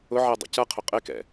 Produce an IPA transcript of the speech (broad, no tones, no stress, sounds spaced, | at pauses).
ʊ ʕ ɛ dˤ ə̰ c ʌ qʰ ʊ qʼ ɪ k ɛ̰